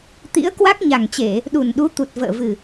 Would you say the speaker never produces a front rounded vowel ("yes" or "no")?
yes